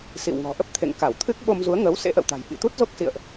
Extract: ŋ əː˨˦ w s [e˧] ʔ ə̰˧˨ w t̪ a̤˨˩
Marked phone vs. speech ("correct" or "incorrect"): incorrect